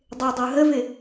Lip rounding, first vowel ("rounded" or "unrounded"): unrounded